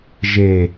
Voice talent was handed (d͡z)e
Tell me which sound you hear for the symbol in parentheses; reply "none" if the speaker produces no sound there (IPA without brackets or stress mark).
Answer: ʒ